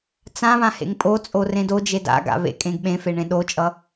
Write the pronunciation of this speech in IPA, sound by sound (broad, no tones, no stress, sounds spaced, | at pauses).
t͡s ã β ã h ḛ ŋ pʼ o t͡sʼ o r ẽ d o d͡ʒ e d a̰ ɡ a̰ β ḛ kʼ ẽ ɡ ɓ ẽ f e ɳ ẽ ɗ o t͡ʃʼ ʌ